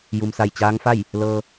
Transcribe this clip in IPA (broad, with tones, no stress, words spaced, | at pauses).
ju˩msa˧˩jt͡ɕaː˧˥ŋfa˥˨j | lɤː˧